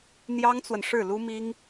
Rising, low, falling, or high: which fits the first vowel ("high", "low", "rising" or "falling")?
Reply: high